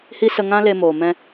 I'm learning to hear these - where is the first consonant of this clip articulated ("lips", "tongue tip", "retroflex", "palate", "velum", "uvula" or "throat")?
throat